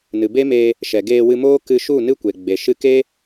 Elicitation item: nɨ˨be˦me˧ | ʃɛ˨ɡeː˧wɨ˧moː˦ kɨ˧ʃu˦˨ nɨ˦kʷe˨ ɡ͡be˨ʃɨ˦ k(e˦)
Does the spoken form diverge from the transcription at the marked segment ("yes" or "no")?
no